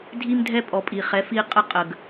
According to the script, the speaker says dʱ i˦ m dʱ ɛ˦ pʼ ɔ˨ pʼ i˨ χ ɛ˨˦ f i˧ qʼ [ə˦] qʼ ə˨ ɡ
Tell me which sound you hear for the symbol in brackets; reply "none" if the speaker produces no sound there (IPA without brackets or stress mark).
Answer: ə˦